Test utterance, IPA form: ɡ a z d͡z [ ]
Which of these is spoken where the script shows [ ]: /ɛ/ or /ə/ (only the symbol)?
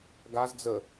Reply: ə